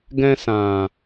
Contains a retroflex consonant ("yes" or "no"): no